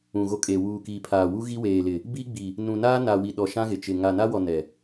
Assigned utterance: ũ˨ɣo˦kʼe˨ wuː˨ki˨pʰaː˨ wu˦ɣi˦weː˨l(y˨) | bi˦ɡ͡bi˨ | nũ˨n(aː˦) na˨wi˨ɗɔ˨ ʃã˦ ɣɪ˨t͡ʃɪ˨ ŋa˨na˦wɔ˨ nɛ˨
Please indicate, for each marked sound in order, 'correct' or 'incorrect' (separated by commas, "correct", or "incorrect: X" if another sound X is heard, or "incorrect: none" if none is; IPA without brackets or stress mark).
incorrect: ɪ˨, correct